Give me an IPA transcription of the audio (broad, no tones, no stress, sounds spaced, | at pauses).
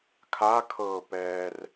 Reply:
kʰ a kʰ ɤː p ɛː r